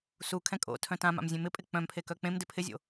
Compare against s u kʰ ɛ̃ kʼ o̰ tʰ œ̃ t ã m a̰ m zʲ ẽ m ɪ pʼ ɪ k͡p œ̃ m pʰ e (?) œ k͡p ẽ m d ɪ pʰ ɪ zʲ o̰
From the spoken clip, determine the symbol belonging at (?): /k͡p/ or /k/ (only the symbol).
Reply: k